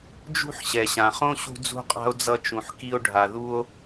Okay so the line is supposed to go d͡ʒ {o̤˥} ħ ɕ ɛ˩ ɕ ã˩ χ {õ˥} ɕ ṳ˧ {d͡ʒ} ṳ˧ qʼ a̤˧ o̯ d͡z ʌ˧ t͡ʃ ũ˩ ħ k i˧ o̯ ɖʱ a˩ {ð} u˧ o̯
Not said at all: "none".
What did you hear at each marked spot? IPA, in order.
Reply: ṳ˥, õ˥, d͡z, ð

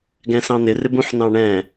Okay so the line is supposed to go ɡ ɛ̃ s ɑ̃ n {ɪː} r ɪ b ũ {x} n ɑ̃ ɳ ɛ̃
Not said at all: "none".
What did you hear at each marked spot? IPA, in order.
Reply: ɪ, ħ

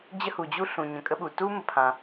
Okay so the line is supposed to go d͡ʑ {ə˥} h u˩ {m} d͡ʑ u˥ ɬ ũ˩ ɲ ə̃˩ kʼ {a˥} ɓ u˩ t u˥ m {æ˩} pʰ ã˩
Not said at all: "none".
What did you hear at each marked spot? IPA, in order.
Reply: ə˥, none, ə˥, ə˩

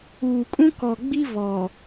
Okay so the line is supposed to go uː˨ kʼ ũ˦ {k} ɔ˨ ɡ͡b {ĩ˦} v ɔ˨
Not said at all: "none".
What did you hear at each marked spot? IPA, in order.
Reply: k, i˦

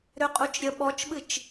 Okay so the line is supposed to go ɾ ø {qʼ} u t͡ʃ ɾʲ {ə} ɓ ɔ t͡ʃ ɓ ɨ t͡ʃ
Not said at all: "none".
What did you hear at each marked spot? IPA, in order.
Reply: qʼ, ə

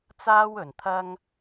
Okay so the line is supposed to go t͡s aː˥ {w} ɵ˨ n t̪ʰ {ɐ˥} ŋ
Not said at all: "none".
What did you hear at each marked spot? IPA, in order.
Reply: w, ɐ˥

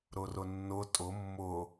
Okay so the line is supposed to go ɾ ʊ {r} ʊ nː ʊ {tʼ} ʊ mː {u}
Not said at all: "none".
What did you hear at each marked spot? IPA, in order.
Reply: r, tʼ, ʊ

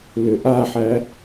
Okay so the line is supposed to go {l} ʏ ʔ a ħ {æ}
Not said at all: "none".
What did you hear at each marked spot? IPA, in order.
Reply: l, æ

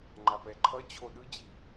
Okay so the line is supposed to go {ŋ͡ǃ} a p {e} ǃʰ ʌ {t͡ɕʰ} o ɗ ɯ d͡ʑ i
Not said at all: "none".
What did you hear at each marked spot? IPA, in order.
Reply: ŋ͡ǃ, ɛ, t͡ɕʰ

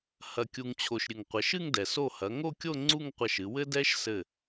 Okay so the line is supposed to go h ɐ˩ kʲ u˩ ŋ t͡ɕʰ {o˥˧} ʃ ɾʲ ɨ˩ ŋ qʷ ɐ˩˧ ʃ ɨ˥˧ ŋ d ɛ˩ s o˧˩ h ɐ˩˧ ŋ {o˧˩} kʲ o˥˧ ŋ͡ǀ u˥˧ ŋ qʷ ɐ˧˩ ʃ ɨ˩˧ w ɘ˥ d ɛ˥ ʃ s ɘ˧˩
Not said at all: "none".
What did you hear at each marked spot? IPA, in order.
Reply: o˩, o˥˧

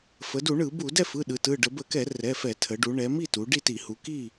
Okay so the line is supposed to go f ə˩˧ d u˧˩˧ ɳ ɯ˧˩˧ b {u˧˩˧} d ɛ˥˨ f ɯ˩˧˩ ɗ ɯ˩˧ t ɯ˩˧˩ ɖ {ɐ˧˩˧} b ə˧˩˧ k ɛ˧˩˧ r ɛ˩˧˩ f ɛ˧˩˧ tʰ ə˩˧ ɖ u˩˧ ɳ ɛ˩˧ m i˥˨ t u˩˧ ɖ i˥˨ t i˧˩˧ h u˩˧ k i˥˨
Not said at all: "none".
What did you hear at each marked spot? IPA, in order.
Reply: u˧˩˧, ə˧˩˧

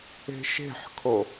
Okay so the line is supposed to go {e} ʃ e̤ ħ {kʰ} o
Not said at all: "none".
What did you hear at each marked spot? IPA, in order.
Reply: e̤, kʰ

